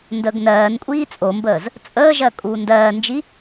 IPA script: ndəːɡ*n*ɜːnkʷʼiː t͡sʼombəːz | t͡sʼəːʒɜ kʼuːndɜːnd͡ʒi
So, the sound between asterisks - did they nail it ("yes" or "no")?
yes